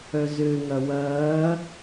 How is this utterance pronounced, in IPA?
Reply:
œ z ø ŋ ɐ w ɐː

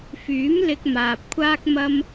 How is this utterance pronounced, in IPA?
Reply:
f yː˨˥ m l ɪ˧ k̚ m aː˨ p̚ kʷʰ aː˥ k̚ m ɐ˥ m

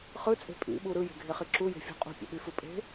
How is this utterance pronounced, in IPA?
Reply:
χ ɯ t͡sʼ e̤ pʼ ḭ ɓ u ɾ ɯ j e̤ ɡʱ e χ i ǁ u j e̤ fʲ ṳ qʼ ṳ pʲ o̰ ɓ y f ɯ pʼ e̤

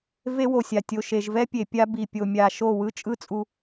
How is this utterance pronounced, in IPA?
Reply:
v e˦ w o˨ sʲ a˨ tʲ o˨ ʃ e˨ ʒ v ɛ˦ pʲ e˨ pʲ a˦ b i˨ pʲ o˨ mʲ a˨ ʃ o˦˨ w ɯ˦ t͡ʃʼ ɯ˦ t͡sʼ u˨

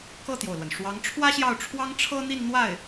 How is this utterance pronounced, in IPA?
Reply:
k ɤ˥˩ t̪ j o˩ ʊ̯ l w ə˩ n ʂ w ɑ˧˥ ŋ ʈ͡ʂʰ w ä˥ ɕ j ɑ˥˩ ʊ̯ ʈ͡ʂʰ w ɑ˥ ŋ ʈ͡ʂʰ ɤ˥ n̪ i˥˧ n n̪ w a˥˩ ɪ̯

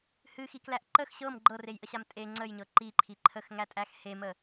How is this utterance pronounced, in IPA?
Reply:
h ɨ x i k l æ ʔ ǃ ə x ɕ ɤ m ɡ͡ǃ ɤ r e j ʔ ə ɕ a m tʼ e ŋ͡ǀ ə j ɲ ɤ ǃ i ǃʰ i ǃʰ ə x ŋ æ tʼ æ x h e m ə

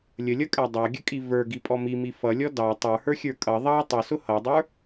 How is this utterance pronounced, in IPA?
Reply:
lʲ ə lʲ ʌ kʼ æ dˤ ɑ ɡʲ ə kʼ i v ə˞ ɡ i pʼ ɔ m i m i f ʌ lʲ ɔ d ɑ tˤ ə˞ h ə˞ xʲ ə˞ kʼ ʌ ðˤ ɑ tˤ ʊ s ʊ h ʌ dˤ ə˞

